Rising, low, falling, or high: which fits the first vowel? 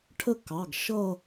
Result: falling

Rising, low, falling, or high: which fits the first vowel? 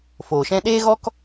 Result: low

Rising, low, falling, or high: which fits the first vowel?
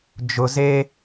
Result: low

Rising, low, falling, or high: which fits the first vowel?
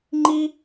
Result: high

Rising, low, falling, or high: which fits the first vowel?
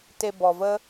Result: low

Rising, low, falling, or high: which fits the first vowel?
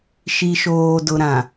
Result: low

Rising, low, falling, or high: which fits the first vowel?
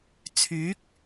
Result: rising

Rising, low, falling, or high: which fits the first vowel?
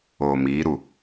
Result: low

